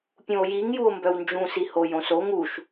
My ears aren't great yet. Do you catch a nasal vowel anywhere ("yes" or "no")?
yes